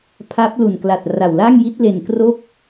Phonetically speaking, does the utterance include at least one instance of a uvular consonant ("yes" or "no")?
no